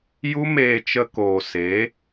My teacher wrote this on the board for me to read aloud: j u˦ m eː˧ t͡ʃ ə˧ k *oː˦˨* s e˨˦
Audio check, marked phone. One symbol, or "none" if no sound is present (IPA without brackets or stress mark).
oː˨